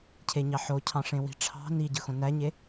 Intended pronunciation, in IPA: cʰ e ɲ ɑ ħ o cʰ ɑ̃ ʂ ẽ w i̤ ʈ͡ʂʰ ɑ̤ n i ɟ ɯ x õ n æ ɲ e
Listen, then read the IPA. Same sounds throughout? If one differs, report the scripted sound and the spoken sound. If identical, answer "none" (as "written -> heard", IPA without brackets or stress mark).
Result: none